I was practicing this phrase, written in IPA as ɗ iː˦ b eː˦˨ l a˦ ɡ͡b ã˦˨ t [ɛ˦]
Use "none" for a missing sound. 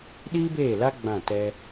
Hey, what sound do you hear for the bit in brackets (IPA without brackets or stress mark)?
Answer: ɛ˦